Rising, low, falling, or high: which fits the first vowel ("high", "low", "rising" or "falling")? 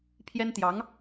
high